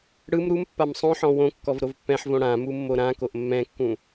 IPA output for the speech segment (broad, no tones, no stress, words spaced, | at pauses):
ɽɯm ɾumpːam sˤõħɔ̃ wõkːɔvɾov pːɛ̃ħvõ ɽãmumːo ɾãkoʔ mːɛ̃kːũ